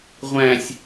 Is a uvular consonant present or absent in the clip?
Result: present